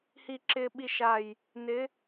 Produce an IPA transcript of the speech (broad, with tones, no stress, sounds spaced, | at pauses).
h i˧ ǁ ɪː˧ ɓ i˧ ʃ a˧˩ j | n ɪ˧˥